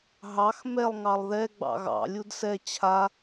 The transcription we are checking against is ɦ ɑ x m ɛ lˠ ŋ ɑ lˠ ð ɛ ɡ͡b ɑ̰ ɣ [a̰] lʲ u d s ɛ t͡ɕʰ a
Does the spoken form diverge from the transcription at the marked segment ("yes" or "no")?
yes